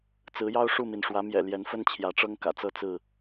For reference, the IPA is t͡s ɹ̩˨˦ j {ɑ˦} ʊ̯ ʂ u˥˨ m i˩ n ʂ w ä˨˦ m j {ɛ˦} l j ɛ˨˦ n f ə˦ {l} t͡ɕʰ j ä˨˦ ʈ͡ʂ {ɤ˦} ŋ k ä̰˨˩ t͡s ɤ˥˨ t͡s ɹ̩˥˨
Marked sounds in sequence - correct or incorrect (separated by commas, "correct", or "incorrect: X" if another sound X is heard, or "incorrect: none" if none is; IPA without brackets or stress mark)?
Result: correct, incorrect: ɛ̰˨˩, incorrect: n, correct